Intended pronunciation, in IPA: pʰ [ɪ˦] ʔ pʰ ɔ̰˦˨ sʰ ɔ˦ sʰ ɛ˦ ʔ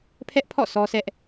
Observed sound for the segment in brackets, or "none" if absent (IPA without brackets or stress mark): ɛ˦